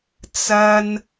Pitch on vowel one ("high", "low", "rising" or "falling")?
high